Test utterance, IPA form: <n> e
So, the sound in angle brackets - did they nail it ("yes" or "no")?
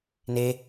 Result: yes